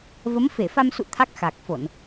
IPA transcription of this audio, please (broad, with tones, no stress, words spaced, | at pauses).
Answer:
və˨˦mfe˧˩fa˧msṵ˧˨ t̪ʰa˦˥k̚xa˨˩k̚fo˧˩˨n